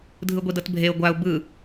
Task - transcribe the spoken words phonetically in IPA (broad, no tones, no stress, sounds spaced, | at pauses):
dʱ ɯ ɡʷ i d ɤ t bʱ e ʊ̯ ɡʷ a ʊ̯ b ɯ